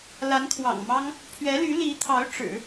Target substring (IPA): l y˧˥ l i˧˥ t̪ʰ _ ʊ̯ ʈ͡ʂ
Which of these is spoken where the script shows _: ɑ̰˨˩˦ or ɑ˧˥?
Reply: ɑ˧˥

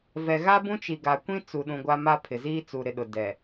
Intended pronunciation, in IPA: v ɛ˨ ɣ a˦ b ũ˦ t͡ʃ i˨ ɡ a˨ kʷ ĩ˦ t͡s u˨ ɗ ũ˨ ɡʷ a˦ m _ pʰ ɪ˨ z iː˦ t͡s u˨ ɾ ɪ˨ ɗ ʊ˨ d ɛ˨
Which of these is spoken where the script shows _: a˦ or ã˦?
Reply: a˦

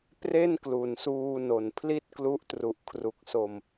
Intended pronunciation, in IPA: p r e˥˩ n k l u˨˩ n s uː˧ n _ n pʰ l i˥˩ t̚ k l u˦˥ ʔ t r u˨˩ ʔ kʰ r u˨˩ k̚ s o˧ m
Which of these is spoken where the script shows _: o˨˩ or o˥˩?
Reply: o˨˩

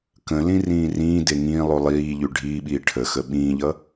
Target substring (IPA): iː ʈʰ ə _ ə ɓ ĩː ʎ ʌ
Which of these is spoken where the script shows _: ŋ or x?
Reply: x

